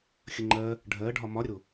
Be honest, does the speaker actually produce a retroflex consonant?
yes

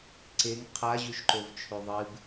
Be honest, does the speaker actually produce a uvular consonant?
yes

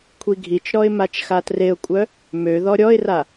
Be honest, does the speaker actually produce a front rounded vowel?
yes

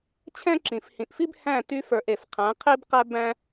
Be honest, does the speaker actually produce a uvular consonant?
yes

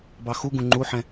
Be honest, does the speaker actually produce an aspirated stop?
no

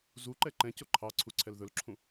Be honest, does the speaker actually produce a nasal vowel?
yes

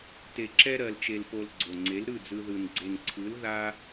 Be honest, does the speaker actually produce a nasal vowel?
no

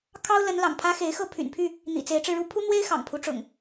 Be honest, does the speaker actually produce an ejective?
no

